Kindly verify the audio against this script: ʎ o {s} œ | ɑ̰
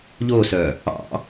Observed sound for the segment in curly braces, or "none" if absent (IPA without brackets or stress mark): s